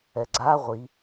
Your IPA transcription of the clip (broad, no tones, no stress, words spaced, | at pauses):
ɛɡ͡ǀa ʁʷi